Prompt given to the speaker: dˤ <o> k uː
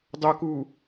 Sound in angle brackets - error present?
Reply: no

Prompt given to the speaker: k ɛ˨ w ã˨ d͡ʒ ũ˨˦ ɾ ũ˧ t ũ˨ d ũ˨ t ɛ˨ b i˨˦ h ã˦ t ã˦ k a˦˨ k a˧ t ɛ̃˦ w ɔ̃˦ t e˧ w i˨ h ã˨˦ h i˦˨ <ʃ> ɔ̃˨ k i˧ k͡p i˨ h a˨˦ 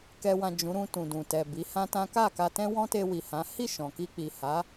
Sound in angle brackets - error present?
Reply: no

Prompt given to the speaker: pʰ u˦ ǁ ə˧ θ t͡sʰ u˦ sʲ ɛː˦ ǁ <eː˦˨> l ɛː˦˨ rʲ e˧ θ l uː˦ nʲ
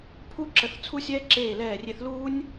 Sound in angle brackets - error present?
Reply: no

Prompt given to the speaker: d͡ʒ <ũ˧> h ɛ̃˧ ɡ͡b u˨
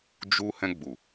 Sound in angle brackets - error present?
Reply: yes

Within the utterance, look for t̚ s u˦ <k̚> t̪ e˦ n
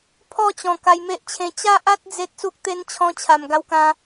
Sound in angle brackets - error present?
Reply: no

